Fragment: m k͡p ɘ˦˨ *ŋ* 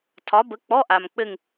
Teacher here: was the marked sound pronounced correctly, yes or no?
yes